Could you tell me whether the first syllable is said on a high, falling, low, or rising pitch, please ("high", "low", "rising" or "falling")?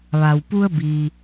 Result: low